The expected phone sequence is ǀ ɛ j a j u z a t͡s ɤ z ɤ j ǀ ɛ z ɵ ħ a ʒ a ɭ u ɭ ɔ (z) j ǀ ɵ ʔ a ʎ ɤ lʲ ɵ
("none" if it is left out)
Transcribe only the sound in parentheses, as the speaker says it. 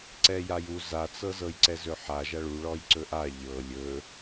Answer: none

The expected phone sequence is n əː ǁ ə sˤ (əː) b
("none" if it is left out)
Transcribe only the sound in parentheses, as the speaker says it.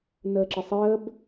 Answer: əː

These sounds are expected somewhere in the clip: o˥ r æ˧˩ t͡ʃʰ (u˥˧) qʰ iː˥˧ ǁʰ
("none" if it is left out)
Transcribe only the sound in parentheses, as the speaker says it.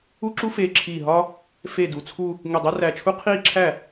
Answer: u˥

